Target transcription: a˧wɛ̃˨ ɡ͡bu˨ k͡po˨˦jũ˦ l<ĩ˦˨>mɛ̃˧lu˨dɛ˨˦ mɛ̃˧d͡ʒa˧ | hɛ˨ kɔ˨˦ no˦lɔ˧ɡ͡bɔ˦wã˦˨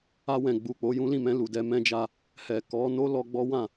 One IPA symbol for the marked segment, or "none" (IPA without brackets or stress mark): ĩ˦˨